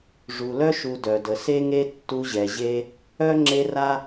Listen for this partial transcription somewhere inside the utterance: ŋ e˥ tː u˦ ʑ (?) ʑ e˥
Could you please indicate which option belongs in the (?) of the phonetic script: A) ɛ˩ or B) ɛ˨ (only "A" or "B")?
B